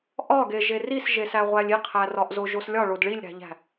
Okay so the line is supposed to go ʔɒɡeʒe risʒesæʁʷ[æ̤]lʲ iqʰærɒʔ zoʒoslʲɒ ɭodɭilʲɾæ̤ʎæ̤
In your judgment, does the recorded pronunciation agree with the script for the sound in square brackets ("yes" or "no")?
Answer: no